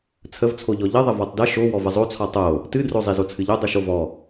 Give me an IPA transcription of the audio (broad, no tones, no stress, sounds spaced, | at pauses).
t͡sʰ ə v t͡sʰ o ʎ ɔ ʎ ə ðˤ ə v ɔ tˤ d ə ʃ o w ɔ v ə zˤ o t͡sʰ ɔ tˤ o | t ɨ d r o zˤ i z o t͡sʰ ɨ ʎ o dˤ ɨ ʃ o v ɔ